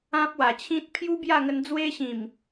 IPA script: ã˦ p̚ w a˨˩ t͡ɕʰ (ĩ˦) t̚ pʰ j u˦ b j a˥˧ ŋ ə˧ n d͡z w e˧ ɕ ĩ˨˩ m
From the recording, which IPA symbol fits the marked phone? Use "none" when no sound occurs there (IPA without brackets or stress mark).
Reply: ĩ˦